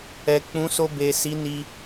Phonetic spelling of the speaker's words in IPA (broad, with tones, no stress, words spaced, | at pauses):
ɛ˨k͡pũ˨˦so˧ be˨si˨˦ ni˧